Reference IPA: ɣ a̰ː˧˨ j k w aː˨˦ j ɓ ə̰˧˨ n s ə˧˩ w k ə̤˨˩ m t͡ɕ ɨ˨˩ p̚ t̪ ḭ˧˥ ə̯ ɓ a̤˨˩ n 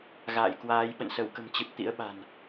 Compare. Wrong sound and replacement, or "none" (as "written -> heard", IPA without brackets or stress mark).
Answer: none